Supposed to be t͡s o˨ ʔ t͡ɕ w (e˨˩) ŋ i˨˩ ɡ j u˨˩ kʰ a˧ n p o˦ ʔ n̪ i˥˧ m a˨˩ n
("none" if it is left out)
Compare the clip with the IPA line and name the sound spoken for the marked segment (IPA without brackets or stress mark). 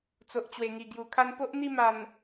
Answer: e˨˩